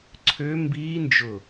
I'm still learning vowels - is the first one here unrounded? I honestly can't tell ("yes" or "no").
no